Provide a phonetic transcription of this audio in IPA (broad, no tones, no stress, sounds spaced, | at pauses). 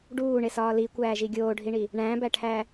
ɖ uː ɳ e s ɒː l i kʷ æː ʒ i ɡʲ oː ɖʱ i ɳ i | ɳ æ̃ b æ ʈʰ æ